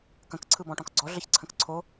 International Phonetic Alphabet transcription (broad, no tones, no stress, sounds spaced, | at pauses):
k ə̃ k ǀʰ ɯ b ɔ̃ ʈ ɔ̃ k ɡ͡ǀ ɔ ɮ ə ç ǀʰ ə̃ k ǀʰ o